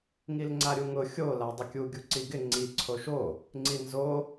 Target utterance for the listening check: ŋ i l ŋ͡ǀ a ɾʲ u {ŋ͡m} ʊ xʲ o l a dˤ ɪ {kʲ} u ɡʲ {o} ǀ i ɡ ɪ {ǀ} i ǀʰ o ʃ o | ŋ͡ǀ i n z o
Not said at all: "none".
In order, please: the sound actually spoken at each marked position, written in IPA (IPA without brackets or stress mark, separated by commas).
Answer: ŋ, kʲ, u, ŋ͡ǀ